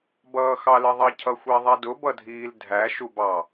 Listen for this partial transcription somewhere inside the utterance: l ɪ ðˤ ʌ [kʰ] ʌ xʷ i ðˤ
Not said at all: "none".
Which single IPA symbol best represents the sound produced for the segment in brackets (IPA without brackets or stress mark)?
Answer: cʰ